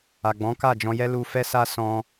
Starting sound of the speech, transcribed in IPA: a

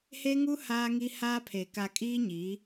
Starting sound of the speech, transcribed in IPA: h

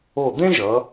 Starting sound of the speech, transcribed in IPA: o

